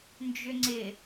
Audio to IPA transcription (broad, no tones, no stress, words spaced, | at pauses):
nd͡ʒʏŋ͡ǀɪ